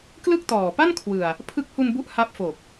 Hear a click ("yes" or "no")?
no